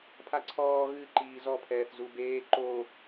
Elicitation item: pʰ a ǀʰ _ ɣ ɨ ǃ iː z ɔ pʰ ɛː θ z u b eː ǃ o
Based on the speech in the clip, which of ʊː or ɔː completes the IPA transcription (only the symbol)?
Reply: ɔː